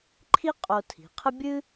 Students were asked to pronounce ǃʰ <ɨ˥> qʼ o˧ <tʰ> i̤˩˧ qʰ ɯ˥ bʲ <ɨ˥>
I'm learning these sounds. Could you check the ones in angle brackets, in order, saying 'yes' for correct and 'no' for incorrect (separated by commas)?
no, yes, yes